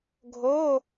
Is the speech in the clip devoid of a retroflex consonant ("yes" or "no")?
yes